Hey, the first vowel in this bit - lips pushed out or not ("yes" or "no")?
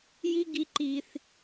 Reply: no